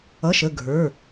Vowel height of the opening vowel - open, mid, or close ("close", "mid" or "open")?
mid